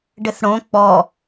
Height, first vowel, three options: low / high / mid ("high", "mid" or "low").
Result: mid